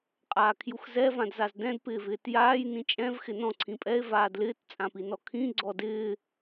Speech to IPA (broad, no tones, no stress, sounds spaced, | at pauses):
qʼ aː kʰ j u x z ɛ v ã d z a z d ɛ̃ d p ɪː v ɪː t j aː j n ĩ t͡ʃʼ ɛ̃ v x ɪ n ɔ̃ ǀʰ ĩ pʼ ɛ e̯ v aː d l ɪː t t͡sʼ ã p i n ɔ kʰ ĩ ɡ͡ǀ ɔ d ɪː